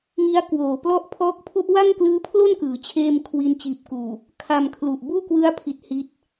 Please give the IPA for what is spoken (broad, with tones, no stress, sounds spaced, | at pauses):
ŋ i˦˥ a̯ k w oː˨˩ p l ɔ˥˩ ʔ pʰ ɔː˦˥ k̚ pʰ u˦˥ ʔ w a˥˩ ŋ k l ɯː˦˥ pʰ l o˥˩ n k ɯː˩˦ t͡ɕʰ eː˥˩ m kʰ w i˧ n t͡ɕ iː˨˩ p̚ k uː˨˩ | kʰ a˧ m kʰ l u˨˩ ʔ b uː˥˩ k w ɯ˦˥ a̯ pʰ i˦˥ t̚ h i˦˥ t̚